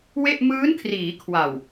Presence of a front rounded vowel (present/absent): absent